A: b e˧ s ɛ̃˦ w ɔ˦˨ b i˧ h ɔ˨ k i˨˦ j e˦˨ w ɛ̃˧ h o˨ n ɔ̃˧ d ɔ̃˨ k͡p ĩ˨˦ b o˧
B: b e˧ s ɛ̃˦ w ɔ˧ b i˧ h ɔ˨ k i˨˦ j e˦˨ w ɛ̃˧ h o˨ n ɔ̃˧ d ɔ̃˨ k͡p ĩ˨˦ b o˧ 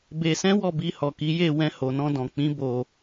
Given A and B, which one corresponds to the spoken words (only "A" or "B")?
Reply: A